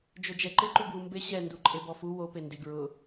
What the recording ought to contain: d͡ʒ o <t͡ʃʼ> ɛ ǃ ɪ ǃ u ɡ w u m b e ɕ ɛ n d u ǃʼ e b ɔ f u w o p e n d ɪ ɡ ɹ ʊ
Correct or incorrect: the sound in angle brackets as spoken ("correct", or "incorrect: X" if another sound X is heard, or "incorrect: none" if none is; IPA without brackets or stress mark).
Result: incorrect: d͡ʒ